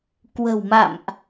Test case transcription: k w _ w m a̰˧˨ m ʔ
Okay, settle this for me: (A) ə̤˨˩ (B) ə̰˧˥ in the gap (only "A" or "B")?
A